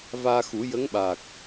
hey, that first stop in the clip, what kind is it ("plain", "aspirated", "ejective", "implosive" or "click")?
implosive